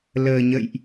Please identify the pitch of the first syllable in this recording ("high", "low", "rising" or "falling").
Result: low